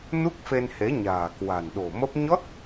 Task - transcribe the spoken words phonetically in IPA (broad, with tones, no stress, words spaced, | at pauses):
nu˦˥k̚fe˧nhe˨˦ ɲa̤ː˨˩kwa̤˨˩nɗo̤˨˩mə˦˥p̚ ɲɔ˦˥t̚